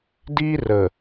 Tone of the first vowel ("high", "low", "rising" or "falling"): high